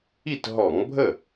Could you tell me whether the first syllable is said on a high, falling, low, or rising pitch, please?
falling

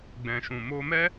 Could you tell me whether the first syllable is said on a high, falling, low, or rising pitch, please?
low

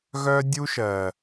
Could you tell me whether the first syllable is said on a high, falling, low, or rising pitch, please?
high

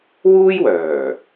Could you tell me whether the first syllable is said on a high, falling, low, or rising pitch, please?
high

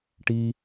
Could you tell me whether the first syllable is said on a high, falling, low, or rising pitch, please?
high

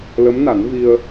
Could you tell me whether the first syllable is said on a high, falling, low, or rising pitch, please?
rising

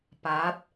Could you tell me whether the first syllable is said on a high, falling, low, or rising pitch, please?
rising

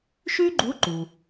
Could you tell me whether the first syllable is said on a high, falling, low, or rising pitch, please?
high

